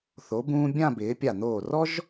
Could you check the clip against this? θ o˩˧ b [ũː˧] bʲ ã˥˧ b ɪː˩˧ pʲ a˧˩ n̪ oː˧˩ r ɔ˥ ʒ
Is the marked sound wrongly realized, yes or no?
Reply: no